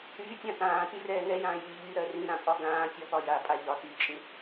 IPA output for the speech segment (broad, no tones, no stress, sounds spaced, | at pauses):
ɾ yː tʲ ã t ãː t y r ɛː ŋ ɛ j ãː j yː ʎ y ɾ ɜ r ĩ ɾ ã pʼ ɒ ɡ ãː tʲ ɒ p ɒ j a pʼ a ʎ ɒ t yː t͡ʃʼ ĩ